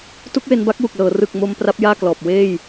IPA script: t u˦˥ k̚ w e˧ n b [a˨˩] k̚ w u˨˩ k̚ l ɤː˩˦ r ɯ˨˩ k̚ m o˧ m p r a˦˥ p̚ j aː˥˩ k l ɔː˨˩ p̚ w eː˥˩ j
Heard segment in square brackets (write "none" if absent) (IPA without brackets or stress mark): a˦˥